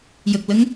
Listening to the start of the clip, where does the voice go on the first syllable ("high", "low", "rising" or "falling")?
low